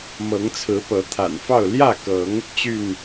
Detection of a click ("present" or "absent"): absent